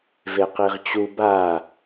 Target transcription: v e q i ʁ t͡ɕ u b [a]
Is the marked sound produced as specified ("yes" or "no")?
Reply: yes